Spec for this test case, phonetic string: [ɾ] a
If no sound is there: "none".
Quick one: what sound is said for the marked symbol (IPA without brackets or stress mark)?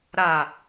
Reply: ɾ